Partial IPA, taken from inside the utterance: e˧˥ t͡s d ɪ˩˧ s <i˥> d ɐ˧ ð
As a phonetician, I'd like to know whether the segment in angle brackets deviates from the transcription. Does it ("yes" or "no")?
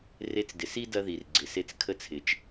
no